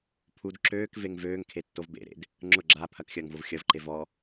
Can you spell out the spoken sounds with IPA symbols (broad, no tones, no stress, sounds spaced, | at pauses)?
pʰ u d ǁ øː k v e ŋ v øː ŋ kʰ e tː o v b ḛ ɾ ḛ d | ŋ͡ǁ ʊ ɡ͡ǁ a pʰ ɐ k xʲ ɐː ŋ v ʊ v xʲ ɐ v ǃ e v ɔ